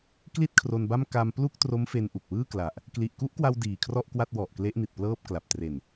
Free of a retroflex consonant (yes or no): yes